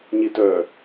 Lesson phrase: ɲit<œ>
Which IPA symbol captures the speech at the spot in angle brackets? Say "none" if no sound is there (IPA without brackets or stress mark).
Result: œ